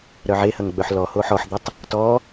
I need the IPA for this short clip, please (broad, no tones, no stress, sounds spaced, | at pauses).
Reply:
ɾ œ ʕ e h ɐ ŋ ɡ͡b œ ħ l ɔ h o ħ ɔ ħ d̪ ɐ tˤ | t ɔ